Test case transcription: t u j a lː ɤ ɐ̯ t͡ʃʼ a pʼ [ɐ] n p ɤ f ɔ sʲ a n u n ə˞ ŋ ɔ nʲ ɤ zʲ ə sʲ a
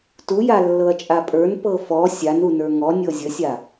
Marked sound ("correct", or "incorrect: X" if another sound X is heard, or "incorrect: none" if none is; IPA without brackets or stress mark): incorrect: ə˞